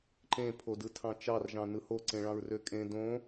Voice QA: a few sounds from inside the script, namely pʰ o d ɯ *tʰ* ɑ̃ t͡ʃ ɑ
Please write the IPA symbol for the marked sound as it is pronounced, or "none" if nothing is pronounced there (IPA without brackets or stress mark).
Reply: tʰ